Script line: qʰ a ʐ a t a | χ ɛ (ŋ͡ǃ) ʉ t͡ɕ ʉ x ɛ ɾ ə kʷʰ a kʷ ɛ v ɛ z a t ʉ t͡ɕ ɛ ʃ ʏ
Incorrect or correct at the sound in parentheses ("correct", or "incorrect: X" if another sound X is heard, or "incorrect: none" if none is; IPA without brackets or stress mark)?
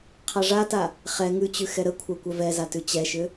incorrect: ŋ